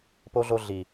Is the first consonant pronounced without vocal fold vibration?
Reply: yes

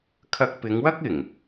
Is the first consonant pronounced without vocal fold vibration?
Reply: yes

